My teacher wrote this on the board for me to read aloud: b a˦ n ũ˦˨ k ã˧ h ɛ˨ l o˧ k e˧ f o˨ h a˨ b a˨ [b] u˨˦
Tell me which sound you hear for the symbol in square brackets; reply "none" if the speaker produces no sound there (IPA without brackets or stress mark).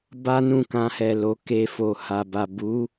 b